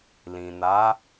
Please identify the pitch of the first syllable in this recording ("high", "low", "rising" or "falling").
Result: low